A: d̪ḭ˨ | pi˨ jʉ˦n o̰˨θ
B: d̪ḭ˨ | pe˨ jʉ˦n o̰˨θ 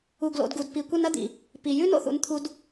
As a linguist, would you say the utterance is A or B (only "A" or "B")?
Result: A